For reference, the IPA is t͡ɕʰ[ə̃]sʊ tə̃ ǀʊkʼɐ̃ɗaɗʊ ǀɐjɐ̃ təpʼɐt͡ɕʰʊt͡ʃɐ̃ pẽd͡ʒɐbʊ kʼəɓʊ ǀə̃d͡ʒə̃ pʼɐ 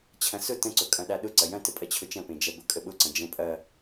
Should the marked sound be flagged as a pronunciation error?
yes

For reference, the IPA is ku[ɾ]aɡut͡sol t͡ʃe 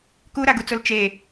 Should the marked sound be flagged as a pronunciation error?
no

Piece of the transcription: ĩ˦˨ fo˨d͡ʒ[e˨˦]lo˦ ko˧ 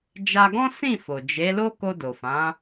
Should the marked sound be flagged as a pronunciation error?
no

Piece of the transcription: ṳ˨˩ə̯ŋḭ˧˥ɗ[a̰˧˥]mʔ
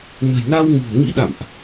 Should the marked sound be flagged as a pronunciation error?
yes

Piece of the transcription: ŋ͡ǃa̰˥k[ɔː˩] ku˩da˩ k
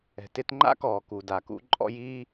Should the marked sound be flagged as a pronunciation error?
no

